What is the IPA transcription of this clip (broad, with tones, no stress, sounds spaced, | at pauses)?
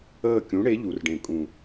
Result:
əː˦˨ kʲ ũ˨˥ ɽ e˨˥ ʎ u˨˥ r ɖ ẽ˦˨ kʼ ũ˦˨